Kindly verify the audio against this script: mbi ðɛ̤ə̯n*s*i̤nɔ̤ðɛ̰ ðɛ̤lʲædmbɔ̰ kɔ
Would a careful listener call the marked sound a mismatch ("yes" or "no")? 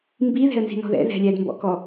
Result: yes